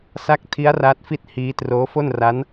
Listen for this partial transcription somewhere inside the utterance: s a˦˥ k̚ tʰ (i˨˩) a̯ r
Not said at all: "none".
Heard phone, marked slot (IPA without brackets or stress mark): i˦˥